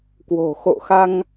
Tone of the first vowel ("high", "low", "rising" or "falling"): low